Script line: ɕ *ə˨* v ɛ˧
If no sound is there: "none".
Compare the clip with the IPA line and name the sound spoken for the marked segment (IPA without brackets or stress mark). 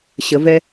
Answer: ə˨